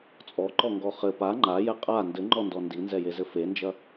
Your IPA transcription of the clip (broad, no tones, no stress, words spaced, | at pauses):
t͡sʼɔǃɔŋɡɔ χɘ pa ŋ͡ǃajɛ qʼa ndɘŋ͡ǃɔndɔ ndinzɛjezɘ fend͡ʒɐ